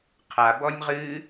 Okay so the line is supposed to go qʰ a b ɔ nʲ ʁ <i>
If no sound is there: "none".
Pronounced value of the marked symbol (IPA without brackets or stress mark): ɨ